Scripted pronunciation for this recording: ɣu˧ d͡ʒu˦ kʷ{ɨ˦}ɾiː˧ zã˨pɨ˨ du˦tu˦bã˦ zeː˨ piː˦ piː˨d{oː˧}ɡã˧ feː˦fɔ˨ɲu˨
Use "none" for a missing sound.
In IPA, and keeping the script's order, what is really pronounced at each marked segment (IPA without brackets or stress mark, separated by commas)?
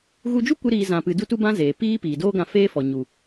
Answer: ɨ˦, oː˦